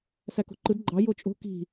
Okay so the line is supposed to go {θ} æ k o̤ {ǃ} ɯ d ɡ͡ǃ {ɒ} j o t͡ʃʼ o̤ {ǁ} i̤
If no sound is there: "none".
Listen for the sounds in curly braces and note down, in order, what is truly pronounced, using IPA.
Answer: s, ǃ, ɑ, k

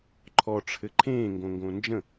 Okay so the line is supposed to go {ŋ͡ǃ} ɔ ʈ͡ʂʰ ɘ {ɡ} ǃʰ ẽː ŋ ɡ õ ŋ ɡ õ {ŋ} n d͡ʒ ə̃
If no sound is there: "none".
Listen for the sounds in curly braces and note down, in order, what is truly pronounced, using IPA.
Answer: ǃʰ, none, none

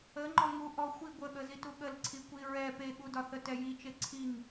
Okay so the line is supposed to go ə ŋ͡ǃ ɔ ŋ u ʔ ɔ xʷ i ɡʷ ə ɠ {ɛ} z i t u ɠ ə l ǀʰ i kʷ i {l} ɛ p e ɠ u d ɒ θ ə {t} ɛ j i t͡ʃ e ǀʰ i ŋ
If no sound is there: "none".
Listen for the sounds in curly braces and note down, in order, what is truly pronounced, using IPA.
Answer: ə, ɹ, t

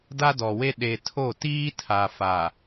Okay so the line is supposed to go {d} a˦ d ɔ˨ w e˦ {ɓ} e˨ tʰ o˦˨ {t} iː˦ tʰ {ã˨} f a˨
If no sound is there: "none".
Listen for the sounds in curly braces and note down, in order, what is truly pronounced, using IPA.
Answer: d, ɗ, t, a˨

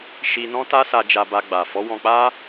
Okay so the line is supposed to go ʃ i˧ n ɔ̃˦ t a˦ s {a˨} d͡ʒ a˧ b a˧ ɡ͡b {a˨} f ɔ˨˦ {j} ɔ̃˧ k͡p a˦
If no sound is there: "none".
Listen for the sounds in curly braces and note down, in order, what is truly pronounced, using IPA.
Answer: a˧, a˨, w

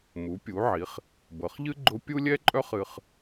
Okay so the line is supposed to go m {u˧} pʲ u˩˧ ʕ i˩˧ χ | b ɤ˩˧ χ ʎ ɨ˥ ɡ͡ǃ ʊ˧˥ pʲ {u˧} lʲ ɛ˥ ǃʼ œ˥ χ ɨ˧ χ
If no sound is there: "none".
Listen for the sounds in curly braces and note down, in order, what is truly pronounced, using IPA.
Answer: u˩˧, u˥

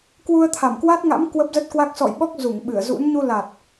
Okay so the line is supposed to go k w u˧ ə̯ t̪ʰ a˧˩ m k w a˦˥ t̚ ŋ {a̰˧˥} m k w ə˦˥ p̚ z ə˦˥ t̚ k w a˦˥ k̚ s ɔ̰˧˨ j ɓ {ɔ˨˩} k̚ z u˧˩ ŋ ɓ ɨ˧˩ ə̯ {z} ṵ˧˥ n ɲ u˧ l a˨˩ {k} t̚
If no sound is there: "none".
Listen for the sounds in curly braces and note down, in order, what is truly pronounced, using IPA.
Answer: a̰˧˥, ɔ˦˥, z, none

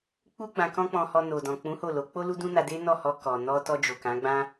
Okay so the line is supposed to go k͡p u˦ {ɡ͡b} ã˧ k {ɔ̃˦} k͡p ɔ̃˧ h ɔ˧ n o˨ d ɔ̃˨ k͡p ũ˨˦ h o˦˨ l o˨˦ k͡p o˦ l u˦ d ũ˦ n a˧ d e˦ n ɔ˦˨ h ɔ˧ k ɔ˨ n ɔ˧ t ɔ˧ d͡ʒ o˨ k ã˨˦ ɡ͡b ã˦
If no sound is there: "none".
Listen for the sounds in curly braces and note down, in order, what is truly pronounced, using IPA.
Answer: ɡ͡b, ɔ̃˦

